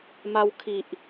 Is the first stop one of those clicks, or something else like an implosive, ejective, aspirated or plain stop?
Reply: aspirated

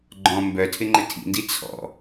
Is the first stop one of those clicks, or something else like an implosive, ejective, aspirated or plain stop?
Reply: click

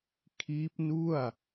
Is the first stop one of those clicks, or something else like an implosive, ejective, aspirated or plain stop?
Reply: aspirated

